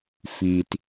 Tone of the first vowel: low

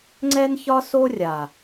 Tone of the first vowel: high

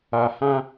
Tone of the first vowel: low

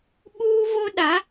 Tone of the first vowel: high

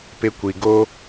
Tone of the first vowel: high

